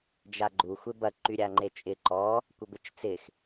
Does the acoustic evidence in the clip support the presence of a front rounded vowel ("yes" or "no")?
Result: yes